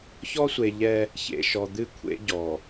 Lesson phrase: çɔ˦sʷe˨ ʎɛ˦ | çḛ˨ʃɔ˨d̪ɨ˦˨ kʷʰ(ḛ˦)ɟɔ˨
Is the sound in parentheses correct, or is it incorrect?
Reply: correct